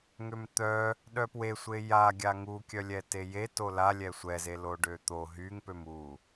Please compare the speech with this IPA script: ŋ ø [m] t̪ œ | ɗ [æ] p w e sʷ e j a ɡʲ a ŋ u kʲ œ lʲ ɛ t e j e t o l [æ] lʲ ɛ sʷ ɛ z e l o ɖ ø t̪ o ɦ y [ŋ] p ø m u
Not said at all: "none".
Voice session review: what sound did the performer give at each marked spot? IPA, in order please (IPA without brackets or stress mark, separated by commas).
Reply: m, œ, a, ŋ